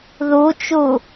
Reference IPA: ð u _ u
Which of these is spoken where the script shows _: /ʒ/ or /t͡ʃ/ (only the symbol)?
t͡ʃ